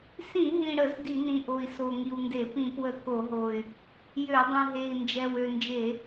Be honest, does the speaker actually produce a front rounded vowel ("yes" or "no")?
yes